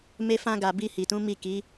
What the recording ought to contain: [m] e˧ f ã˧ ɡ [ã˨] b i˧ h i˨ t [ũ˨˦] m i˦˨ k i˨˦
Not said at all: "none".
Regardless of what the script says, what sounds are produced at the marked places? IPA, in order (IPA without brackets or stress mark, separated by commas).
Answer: m, a˨, ũ˨˦